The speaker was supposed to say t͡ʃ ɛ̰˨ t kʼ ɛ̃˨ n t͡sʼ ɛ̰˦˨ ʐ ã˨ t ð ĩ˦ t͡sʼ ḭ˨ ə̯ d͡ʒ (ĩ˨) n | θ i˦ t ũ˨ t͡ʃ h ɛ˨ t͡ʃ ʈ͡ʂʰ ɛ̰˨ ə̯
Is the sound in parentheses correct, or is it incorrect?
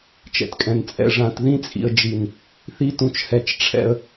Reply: incorrect